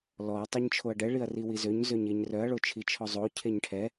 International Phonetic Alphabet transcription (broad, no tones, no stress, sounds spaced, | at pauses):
l ɔ ɐ̯ tˤ e ɲ t͡ʃʰ o ɐ̯ ɖ ɛ ɭ i ɐ̯ r i w i z ø ɲ z ø ɲ e ɲ r œ ɐ̯ ɭ o t͡ʃʰ i t͡ʃʰ ɔ zˤ o cʰ e ɲ ʈʰ ɛ